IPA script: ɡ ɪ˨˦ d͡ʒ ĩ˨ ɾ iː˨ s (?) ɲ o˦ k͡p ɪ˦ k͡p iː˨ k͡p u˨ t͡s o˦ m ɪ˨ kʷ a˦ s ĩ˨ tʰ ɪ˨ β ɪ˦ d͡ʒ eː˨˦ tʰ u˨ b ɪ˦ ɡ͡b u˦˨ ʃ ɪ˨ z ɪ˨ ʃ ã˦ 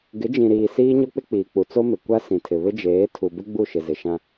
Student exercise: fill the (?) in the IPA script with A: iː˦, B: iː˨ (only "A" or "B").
A